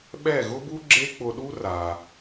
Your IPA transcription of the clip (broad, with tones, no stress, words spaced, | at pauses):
ɓɛ˥˩ɣʊ˥bu˥ ɡ͡ǁe˥k͡pʊ˧ɗu˥ ra˩